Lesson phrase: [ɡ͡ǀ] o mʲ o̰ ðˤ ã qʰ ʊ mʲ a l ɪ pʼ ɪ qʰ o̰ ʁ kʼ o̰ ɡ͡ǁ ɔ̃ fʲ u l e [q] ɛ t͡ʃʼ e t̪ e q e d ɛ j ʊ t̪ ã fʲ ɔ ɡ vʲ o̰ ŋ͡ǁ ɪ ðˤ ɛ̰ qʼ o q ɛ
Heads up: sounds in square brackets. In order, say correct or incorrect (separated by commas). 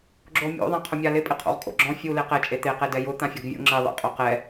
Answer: incorrect, correct